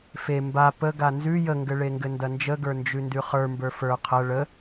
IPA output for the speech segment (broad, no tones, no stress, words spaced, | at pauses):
fe mba pə ɡanzʉ jəŋɡɘɭeŋɡɘ ndɐnd͡ʒəɡə˞ nd͡ʒʉndʉχə˞ mbə˞fə˞ qʰɐ ɭə